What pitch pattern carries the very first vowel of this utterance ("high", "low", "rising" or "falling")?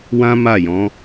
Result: high